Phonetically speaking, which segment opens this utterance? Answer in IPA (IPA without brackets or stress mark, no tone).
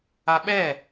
a